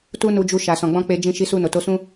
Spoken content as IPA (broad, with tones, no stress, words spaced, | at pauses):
tu˦nu˧d͡ʒu˧ ʃa˨sɔ̃˨ɡ͡bɔ̃˧ k͡pe˧d͡ʒĩ˧ ʃi˧su˧ no˨ to˧sũ˦